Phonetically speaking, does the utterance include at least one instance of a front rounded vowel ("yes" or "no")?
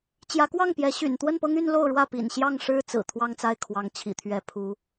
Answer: yes